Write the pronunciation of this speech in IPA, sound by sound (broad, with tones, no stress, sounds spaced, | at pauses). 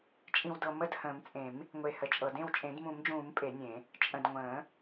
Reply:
t͡ʃʼ ĩ˨ w d ɤ˨ m ə˥˩ d h ə̃ː˨˩˦ m t͡sʼ ẽ˨˩˦ m | ŋʷ e˨ h ə˨ t͡ʃʼ ɤ˨ d ẽ˥˩ w t͡ʃʼ ẽ˨˩˦ d m ũ˨˩˦ m d͡ʒ ũː˨˩˦ m pʼ e˨˩˦ nʲ ẽ˨˩˦ | t͡ʃʼ ə̃˨ d ŋʷ ə̃ː˨˩˦